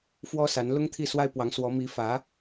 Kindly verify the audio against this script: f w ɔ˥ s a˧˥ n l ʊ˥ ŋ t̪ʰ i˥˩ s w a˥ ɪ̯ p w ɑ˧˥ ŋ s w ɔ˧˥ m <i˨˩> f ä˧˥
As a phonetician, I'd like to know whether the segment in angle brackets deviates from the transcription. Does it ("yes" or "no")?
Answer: yes